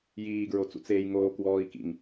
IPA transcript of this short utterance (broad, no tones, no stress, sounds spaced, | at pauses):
j iː ɡ ɹ o t͡s ṵ t͡s eː j ŋ oː k w ɔː i̯ k ḭ ŋ